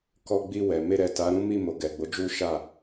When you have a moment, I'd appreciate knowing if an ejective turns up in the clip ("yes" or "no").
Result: no